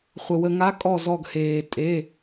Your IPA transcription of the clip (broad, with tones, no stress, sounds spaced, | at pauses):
χʷ ə˧ w ə˧ ŋ a˧˥ kʼ ɔ˥˧ z ɔ˥˧ ɡ h eː˧ tʼ e˧˥˧